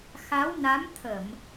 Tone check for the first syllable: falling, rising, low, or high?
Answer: rising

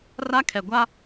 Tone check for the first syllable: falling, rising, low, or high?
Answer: high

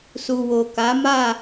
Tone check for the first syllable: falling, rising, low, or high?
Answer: low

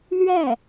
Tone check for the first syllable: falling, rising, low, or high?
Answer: falling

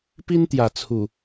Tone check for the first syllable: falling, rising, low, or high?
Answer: high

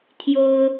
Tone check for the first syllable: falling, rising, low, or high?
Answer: high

